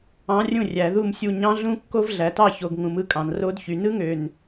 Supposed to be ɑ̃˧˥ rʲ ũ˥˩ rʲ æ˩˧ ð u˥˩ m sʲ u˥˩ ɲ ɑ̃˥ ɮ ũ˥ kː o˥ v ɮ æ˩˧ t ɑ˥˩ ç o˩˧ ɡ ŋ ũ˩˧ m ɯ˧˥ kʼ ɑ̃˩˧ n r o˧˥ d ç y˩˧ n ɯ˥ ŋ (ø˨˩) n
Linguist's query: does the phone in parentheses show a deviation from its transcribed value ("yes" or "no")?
no